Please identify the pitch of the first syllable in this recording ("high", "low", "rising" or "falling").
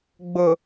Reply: low